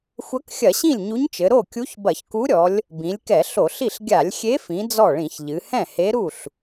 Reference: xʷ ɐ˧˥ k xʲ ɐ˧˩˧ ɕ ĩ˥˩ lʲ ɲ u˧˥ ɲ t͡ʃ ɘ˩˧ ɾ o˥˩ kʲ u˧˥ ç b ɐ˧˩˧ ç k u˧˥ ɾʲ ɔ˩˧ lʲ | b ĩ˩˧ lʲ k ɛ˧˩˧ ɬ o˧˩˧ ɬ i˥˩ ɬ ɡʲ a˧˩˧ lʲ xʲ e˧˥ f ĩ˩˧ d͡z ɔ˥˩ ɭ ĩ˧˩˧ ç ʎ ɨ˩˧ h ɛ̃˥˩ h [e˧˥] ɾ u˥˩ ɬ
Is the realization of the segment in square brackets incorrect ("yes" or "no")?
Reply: no